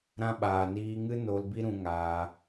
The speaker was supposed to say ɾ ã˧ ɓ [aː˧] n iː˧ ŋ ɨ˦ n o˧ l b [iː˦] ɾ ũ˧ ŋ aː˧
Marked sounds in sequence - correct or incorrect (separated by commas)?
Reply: incorrect, incorrect